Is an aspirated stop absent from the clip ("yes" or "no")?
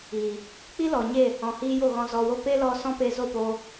yes